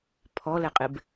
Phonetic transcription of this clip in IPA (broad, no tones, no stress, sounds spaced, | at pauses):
pʰ ɔ l ɛ qʼ ɪ b